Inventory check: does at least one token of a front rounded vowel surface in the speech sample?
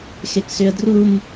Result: yes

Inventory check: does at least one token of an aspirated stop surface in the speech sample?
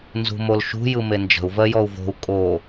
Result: no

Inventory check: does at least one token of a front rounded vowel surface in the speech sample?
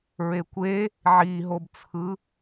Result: no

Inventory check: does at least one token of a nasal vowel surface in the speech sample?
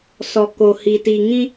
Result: yes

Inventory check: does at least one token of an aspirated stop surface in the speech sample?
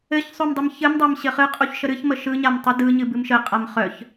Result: no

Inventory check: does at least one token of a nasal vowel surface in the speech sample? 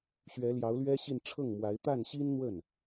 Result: no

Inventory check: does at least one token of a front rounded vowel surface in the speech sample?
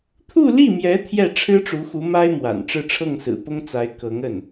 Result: no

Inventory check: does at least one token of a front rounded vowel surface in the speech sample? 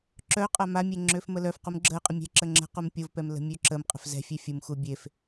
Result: yes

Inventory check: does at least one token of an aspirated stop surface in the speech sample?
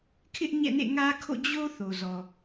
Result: yes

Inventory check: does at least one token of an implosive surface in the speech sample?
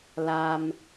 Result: no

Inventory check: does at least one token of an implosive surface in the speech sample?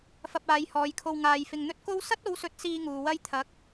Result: no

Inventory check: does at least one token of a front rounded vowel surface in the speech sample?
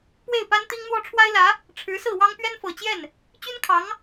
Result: yes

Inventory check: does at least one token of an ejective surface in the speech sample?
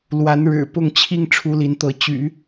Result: no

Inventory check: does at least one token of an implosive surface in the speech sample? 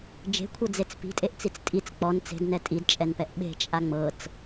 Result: yes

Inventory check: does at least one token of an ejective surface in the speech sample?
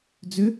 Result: no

